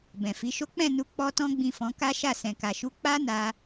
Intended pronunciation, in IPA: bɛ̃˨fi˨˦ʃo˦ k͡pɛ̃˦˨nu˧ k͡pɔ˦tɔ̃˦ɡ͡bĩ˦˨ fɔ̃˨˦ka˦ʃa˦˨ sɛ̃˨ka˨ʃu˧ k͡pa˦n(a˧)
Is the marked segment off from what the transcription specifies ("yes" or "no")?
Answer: no